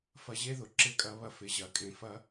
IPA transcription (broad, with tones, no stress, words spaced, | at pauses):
fɐ˨ʑe˦ðʊ˩ ǁɪ˥kʼɐ˦βɐ˥fɪ˨ ʑɐ˩kʼẽ˨fɐ˦